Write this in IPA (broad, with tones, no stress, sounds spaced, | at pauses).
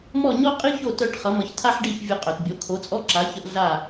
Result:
m ɔ˥˩ ɲ ɔ˥ qʼ i˥ ç o˥˩ t œ˥˩ ʈ χ ʌ˩˥ m ʌ˩˥ ç tʰ a˥ ħ ɖ i˥˩ ç vʲ ə˧ qʼ œ˩ t bʲ o˩˥ kʰ o˩˥ t͡sʼ ɔ˥ ǁ a˩˥ ç ə˧ ʔ ɮ a˥˩